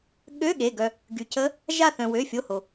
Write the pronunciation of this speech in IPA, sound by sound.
ɠ ø˧˥˧ ɠ e˩˧˩ ɡ œ˩ | ɡ y˩ c ə˧˥ | ʒ a˦˨ θ œ̃˩ w ø˩˧˩ fʲ o˩˧˩ h o˩

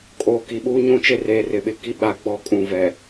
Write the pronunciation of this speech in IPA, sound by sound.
kʼ oː˨ k i˨ ɓ uː˦ ɲ ũ˦ t͡ʃ e˦ r eː˨ r ɪ˨ ɓ ɪ˨ k i˦ ɓ a˨ ɡ͡b ɔ˦˨ kʼ ũ˨ v ɛ˨

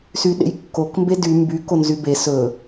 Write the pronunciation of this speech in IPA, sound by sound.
s y ɗ ḛ j kː o k m b e d y m b y k o n z y b e s ɵ

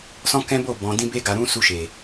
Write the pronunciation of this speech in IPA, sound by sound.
s ɔ̃˦ k ɛ̃˦ b o˦˨ b ɔ̃˨ d ĩ˧ b e˧ ɡ a˨ ɾ ũ˧ s u˧ ʃ e˨

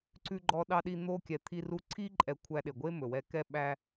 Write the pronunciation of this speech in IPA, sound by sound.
ǀ ʉ˧ ɡ͡ǃ ɔ˧ ɗ ɑ˧ ɗ i˧ n̪ o˧ kʲ ɛ˨ t̪ʰ i˧ r u˧ ǀʰ i˧ ǃʼ ɛ˨ kʷʰ æ˦ ɗ e˨ ɡʷ e˦ m ɵ˨ w ɛ˧ k ɛ˦ ɓ æ˦

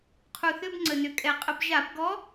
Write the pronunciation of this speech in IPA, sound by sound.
qʰ u˨˩ θ ʏ˧˥˧ b ŋ͡ǀ ə˨˩ n ʏ˨˩ kʼ ɛ˨˩ qʼ ə˧˩˧ b ʒ a˧˩˧ b ɡ ɔ˧˥

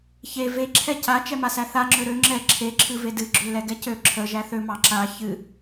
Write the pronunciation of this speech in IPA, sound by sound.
ç e v e ǁʰ ɛ c a t͡ʃ ɛ m a s æ θ a ŋ͡ǁ ø ɾ ø ŋ͡ǁ ɛ ǁʰ e ǁʰ ɨ v e d ɨ ɡ͡ǁ ø l ɛ ɡ ɛ c ø ǁʰ ə ʒ æ θ ø m ɑ ǁ a ç ɨ

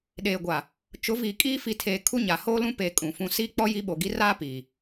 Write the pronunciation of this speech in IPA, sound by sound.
ɗ eː˨ ɡʷ a˨ | t͡ʃ ʊ˨˦ v iː˨ kʼ iː˦ f i˨ tʰ eː˨ kʰ u˦ ɲ a˨ h oː˦ l ũ˦ p eː˨ kʼ ũ˨ f ũ˦ s iː˦ k͡p ɔ˦ j i˦ ɓ o˨ ɡ i˦ r aː˦ p iː˨

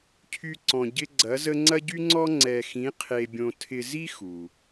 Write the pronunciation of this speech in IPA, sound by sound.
cʰ y˥ ǀ ɔ̃˧ ɟ ɪ˥ ɡ͡ǀ ɐ˧˥ z ə˥ ŋ͡ǀ ɐ˥ ɟ y˥ ŋ͡ǀ ɔ˥ ŋ͡ǀ ɛ˧ x ĩ˧˥ qʰ e˧ bʲ õ˧ tʰ ɪ˧ z i˥ x u˩

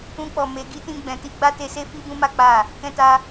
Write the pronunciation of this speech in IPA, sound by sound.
ũ˧ k͡p ɔ˨ m e˨˦ ɡ i˦ t ĩ˦ ɡ͡b ɛ̃˧ t i˦ ɡ͡b a˦ t e˧ s e˦ f i˦ b ũ˦ m a˦ k͡p a˦˨ | k ɛ̃˧ t a˧

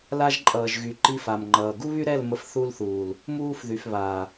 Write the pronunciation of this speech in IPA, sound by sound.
l a˦ ʒ ǃʼ ʌː˨ ʒ ɣ y˨ ǃ i˦ f a˨ m ŋ͡ǃ ʌː˨ ɡ u˦ β y˦ ɾ ɛ˦˨ l m ə˨ f θ u˦ l θ uː˨ l | m uː˦ f ð y˨ f β aː˨

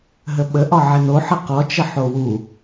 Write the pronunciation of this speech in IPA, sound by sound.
ɦ ə ɓ ə ʔ ɒ ʕ ɪ n o ħ ə q ɔ t͡ʃ ə ħ o w u

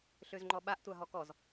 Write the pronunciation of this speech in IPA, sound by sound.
ɬ ø z ŋ͡ǃ ɔ ɓ a ʔ tʷ a ɦ ɔ k ɔ z

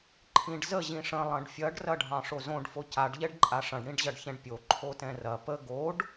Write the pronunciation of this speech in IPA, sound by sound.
ǃʰ ĩ ɖ z ə ʑ ĩ ʂ ə̃ lˠ ɐ̃ ɖ fʲ ɐ ɖ r ɐ ɖʱ ɑ̃ ʂ o z õ ɖ f o c a ɖ ʎ ɛ ɖ ǃʼ a ʂ ɐ̃ ɖ ɽ ĩ ɖ ʑ ɐ ɖ ç ɛ̃ ɖ pʲ o ǃʰ o t ɛ̃ r ɐ p ə ɡ o ɖ

